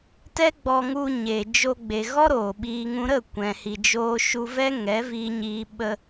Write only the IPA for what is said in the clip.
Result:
t ɛ˦ ɡ͡b ɔ˧ ŋ u˧ ɲ e˨ d͡ʒ o˧ ɡ͡b e˨ ɣ ɔ˦ ɾ oː˨ ɓ iː˧ ŋ ũ˦ ɾ ə˦˨ kʷ ɛ̃˨ h i˨ d͡ʒ oː˧ ʃ u˧ v ɛ˦ ŋ ɛ˨˦ v iː˧ ɲ iː˧ ɓ ə˧

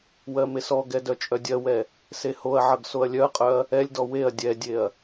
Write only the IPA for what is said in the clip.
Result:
w ɜ m e s ɔ ɡ ɛ d œ t͡ʃʼ œ dʲ ɜ w ɛ | s e h o ɐ̯ ʕ ʌ ɡ s o ɐ̯ lʲ œ ɐ̯ qʼ œ ɐ̯ | ɛ lʲ d ɔ w e ɐ̯ dʲ ɛ dʲ e ɐ̯

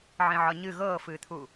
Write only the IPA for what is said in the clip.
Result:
ʕ ĩ ʕ ɒ ɲ ɨ ɣ ɤː f ɨː t̪ʰ u

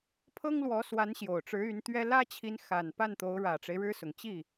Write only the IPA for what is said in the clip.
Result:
pʰ ɤ˥ ŋ l w ɔ˧˥ s w a˧˥ n ɕ j o˨˩ ʊ̯ ʈ͡ʂ ɻ̩˧˥ y˧˥ n t̪ ɥ ɛ˥ l ä˥ t͡ɕʰ i˧˥ n x a˨˩ n p a˥˩ n t̪ o˧˥ ʊ̯ ɻ ä˨˩ ʈ͡ʂ e˦ ɪ̯ ɻ ɻ̩˥ s ʊ˨˩ ŋ t͡ɕ i˥˩

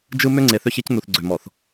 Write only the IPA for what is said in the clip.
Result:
d͡ʒ ɯ˦ m ø˦ ŋ͡ǀ e˨ θ ø˦ ç e˦ c n u˨ θ ɡ͡ǀ ø˨ m ɔ˨ θ

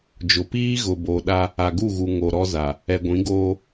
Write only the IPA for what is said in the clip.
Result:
d͡ʒ ʊ˨ p iː˦ ɣ ʊ˨ b o˨ ɗ a˦ | a˨ ɡ u˦˨ ɣ u˨ ŋ o˨ ɾ ɔ˦ z a˨ | ɛ˨ ɡʷ ĩ˨˦ ɡ oː˦

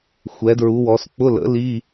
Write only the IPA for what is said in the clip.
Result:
xʷ ɛ˩˧ d ɹ u˩˧ w ɔ˩˧ s k͡p ʊ˧˥˧ l ə̰˩˥ l i˧˥˧

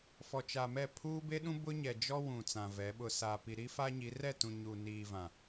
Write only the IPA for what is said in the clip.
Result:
f ɔ˨ t͡ʃ a˨ m ɛ˦˨ pʰ uː˦ b e˦ ɗ ũ˦ b ʊ˦ ɲ ɛ˨ d͡ʒ ɔ˦ w ũ˨ t͡s ã˨ v ɛ˨˦ ɓ ʊ˨ s a˨ p i˨ ɾ i˦ f a˦ ɲ i˨˦ r ɛ˦˨ t ũ˨ ɲ u˨ n iː˨ v ã˨

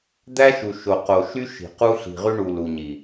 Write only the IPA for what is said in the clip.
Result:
d̪ æ˦ ʃ u˨ ʃ o˨ q o˨ ʃ y˦ ʃ i̤˨ q u˦ ɬ i̤˨ ʁ y˦ ɳ u˨ l u˨ ɲ i˨

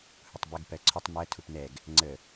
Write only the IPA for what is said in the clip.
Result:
h ʊ tˤ b ə ɡ p ɜ ǀʰ ʊ tˤ m ɜ tʰ u p n ɛ ɡ | ŋ͡ǀ ə

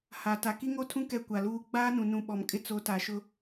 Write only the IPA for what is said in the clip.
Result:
h a˨ t a˨ k i˦ ŋ o˦ tʰ ũ˦ k ɛ˦ kʷ a˨ l uː˦ ɡ͡b aː˦ n ũ˨ n ũ˨ ɓ ɔ˨ m kʼ ɪ˦ t͡s o˨˦ t a˨ ʃ ʊ˦

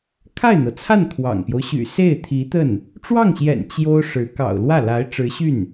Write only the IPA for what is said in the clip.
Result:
kʰ a˥˩ ɪ̯ n̪ ɤ˩ t͡sʰ a˥˩ n kʰ w ɑ̰˨˩ ŋ p j o˦ ʊ̯ ɕ y̰˨˩ s e˥˩ ɪ̯ t̪ʰ i˧˥ t̪ ə˥˩ n | ʈ͡ʂ w ɑ˥˩ ŋ ɕ j ɛ̰˨˩ n t͡ɕ j o˥ ʊ̯ ʂ ɻ̩˧˥ k ɑ̰˨˩ ʊ̯ l w ä˥˩ l a˧˥ ɪ̯ ʈ͡ʂ ɻ̩˧˥ ɕ y˥˩ n

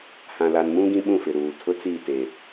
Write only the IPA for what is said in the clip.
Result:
h ã˨ l a˨ n m ũ˦ ɡ ĩ˦ ɓ ũ˦˨ f ɪ˨ ɾ uː˨ tʰ ʊ˦ t͡s i˦˨ t e˨

